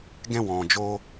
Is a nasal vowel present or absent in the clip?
present